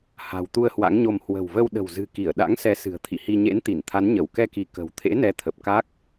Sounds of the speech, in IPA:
h a̤˨˩ w t̪ u˧ ə̯ h w a̰˧˥ ŋ ɲ o˧ m h w ə̤˨˩ w v ə˧ w ɗ ə̤˨˩ w z ɨ̤˨˩ k i˧˩ ə̯ ɗ a̰˧˥ ŋ s ɛ˨˦ s ɨ̤˨˩ ə̯ t̪ʰ ḭ˧˨ h i˧ ɲ ḛ˧˥ n t̪ i˧˩ n t̪ʰ a˨˦ n ɲ ə˧˩ w k ɛ˧ k i˧ k ə̤˨˩ w t̪ʰ ḛ˧˥ n ɛ˨˦ t̪ʰ ə˨˩ p̚ k a˦˥ k̚

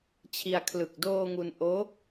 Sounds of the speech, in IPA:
t͡ɕʰ i˧ a̯ kʰ l ɯ˨˩ k̚ d oː˧ ŋ u˧ n ʔ oː˦˥

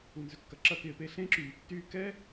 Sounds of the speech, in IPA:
u˨ n z ʏ˨ kː ɐ˨ ǁ ɐ˧ k ɪː˨ p e˧ ɬ ẽ˦ ǁ yː˨ tː yː˦ k ɛ˦

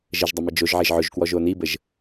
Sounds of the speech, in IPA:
ʒ ə ʒ dˤ ə m i d͡ʒ o ʒ ʕ e ʒ ʕ ɵ ʒ k w ɔ ʒ o n i b ə ʒ

